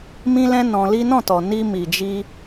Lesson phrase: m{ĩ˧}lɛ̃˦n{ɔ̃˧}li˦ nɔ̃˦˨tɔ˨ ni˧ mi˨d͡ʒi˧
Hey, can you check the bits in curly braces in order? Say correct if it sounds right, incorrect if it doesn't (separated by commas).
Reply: incorrect, correct